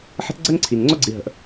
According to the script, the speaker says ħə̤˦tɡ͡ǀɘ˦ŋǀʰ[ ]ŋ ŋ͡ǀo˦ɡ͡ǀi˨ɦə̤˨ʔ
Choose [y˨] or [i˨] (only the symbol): i˨